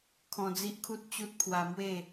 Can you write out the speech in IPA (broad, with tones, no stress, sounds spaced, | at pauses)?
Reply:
kʰ ɔ̃˧ d͡z i˦ ʔ kʰ u˦ t̚ t͡ɕ u˦ t̚ pʰ w a˧ m w e˥˧